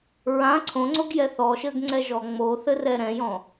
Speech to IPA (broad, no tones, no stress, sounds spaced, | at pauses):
ɹ ã ǀʰ õ ŋ͡ǀ o ɡ j ɛ θ ɔ ʃ ɘ ɡ ŋ͡ǀ ɛ ʒ ɔ ŋ͡m o θ ɘ r ɛ ɾ ɛ̃ j ɔ̃